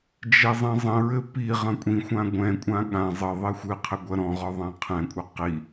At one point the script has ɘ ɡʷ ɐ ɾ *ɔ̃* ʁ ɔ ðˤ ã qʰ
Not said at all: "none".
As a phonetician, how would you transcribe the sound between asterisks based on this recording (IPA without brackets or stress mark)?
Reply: ɔ̃